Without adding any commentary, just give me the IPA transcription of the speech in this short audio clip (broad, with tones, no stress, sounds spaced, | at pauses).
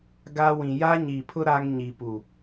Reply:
ɡ a˦ w ĩ˨ j a˦ ɲ i˨ pʰ ʊ˦ ɾ a˦ ŋ ɲ i˨ p u˨